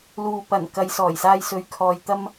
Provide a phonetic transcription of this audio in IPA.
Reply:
l uː˨ p ɐ˨˩ n k ɐ˨˧ j s ɔː˨˩ j s aː˧ j s ɵ˧ ɥ kʰ ɔː˧ j t̪ ɐ˥ m

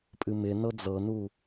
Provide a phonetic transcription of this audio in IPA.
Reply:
pʼ ɨ m ɪ n ɤ d͡z ɤ n u

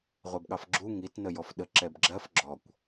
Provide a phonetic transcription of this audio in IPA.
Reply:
ʁʷ ɜ b ɠ ɑ f ɡ͡ǁ u ŋ i t n ə j ɔ f ɗ ə ǁ ɛ b ɡ͡ǁ ɜ f ɡ͡ǁ ɔ kʷ

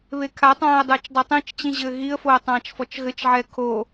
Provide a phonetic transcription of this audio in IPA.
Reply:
β e kʰ a tˤ ãː ə̯ dˤ ɘː t͡ʃ dˤ o tˤ ĩ t͡ʃ t͡ɕ ĩ ʑ ɘː ɣ i ə̯ f o ə̯ tˤ ãː t͡ʃ f ɔ t͡ʃ ɣ ɘ t͡ʃ ʕ ɛ kʰ o

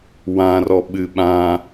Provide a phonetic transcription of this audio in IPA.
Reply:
w ã r ɔ ɓ ɨ ɓ ã

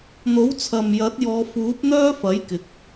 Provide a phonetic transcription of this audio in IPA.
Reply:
n̪ o˨˥ w t͡sʰ ɐ˨ m j ɐ˨˥ t̚ j ɔː˨˧ f uː˨˥ p̚ n̪ œː˥ f ɐ˨˥ j k ɪ˨˥ k̚

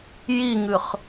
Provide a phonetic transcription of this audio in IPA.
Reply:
j i ŋ ɨ χ

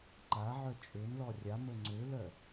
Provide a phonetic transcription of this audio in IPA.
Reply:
ǃ a ʕ œ t͡ʃʼ ø n l ɔ rʲ a m ə ŋ͡ǀ ø l œ

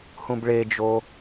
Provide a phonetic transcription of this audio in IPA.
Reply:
h ũ b ɭ e d͡ʒ o

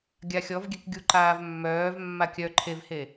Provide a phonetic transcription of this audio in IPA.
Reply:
ɡʲ a xʲ ɔ v ɡʲ ɛ k ɡʲ u ǃ aː v mː œː v mː a kʲ œ ǃʰ e v h e

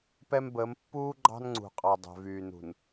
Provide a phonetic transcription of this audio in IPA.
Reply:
p ɛ˦ m b əː˨˦ m pː uː˦ ɡ͡ǃ ɑ̤˦ n ŋ͡ǀ ṳ˨ qʼ ɑ˨ dˤ ɛ̤˨ v yː˨ n ṳ˨ n

